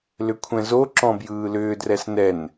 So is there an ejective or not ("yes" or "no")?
no